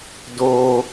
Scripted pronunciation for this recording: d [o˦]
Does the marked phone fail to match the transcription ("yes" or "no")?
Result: yes